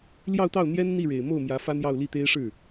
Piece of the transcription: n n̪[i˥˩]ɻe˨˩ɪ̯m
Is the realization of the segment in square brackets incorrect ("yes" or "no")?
no